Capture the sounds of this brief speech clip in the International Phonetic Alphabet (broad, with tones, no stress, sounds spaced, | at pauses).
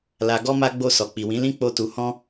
l a˧ ɡ ɔ˦ m a˦ ɡ͡b o˦˨ s ɔ˨ k͡p i˨ w ĩ˨˦ l ĩ˦ k͡p o˦ t u˧ h ɔ̃˦